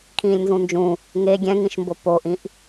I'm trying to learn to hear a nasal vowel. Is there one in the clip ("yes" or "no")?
yes